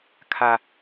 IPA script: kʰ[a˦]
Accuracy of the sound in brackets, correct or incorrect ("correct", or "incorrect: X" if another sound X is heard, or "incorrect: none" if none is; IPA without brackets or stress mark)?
correct